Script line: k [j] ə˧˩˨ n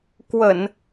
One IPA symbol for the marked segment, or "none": w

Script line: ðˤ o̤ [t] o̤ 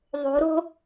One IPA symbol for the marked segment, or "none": ɾ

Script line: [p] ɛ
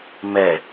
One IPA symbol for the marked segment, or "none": m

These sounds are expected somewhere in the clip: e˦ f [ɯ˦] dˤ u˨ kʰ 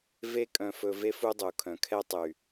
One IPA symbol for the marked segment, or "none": u˦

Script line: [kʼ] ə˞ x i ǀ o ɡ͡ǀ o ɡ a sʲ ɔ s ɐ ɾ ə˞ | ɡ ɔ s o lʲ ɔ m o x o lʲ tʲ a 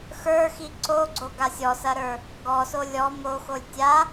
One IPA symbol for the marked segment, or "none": x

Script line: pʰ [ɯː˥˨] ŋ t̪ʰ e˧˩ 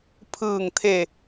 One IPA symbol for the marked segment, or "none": ɯː˧˩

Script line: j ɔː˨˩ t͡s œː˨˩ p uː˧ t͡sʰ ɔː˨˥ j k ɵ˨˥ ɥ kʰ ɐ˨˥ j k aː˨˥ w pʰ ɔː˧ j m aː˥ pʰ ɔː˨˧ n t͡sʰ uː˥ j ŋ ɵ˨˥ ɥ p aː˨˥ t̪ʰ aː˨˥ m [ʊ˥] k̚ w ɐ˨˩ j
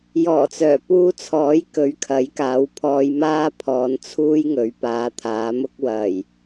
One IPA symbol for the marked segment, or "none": ʊ˥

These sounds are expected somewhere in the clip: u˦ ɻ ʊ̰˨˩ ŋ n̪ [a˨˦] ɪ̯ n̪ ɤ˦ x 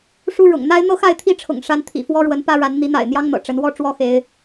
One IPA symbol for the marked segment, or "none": a˦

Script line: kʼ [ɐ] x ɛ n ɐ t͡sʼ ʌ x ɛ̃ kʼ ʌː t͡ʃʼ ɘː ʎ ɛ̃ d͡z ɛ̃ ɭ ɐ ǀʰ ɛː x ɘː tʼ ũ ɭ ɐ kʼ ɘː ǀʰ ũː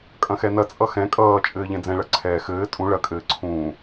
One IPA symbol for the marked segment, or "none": ɐ̃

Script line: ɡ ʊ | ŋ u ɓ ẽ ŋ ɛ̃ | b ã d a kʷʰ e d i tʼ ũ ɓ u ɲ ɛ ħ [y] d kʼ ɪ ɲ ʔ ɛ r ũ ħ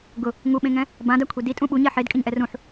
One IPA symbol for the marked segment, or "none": e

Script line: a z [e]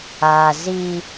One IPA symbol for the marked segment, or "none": i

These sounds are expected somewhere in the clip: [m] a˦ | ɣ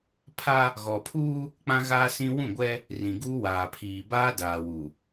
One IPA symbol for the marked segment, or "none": pʰ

